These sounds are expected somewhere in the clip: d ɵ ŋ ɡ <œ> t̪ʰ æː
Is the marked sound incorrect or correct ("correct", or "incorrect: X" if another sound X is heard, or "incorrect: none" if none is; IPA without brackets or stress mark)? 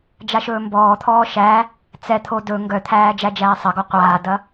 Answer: correct